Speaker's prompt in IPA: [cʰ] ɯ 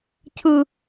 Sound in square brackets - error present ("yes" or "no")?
no